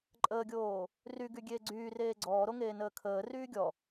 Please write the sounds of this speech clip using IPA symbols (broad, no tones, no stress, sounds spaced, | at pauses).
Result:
ǃʼ əː ɡʲ oː | r y ɡ y ɡʲ eː ɡ͡ǀ yː r eː ɡ͡ǀ ɔː ɾ o ŋ eː n əː kʰ əː r yː ɡʲ ɔ